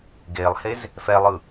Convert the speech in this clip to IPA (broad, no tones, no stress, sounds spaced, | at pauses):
ɡ e lˠ h e z | f ɛ lˠ ɯ